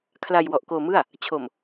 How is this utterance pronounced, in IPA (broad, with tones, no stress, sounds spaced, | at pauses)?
kʰ l a˧ j w ɔ˨˩ ʔ k oː˧ m ɯ˥˩ a̯ | t͡ɕʰ o˨˩ m